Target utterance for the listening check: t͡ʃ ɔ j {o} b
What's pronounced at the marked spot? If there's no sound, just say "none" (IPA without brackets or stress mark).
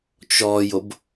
o